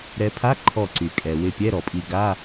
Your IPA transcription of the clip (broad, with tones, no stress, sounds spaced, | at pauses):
ɾ ɛ˨˦ pʰ a˧˥˧ ǃʰ ɔ˧˩ ǀ y˩ kʼ ɛ˩ w ɪ˧˩ pʲ ɛ˧˥˧ ɾ ɔ˩ pʼ i˧˩ ɡ a˧˥˧